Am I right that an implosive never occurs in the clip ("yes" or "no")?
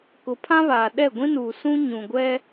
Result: no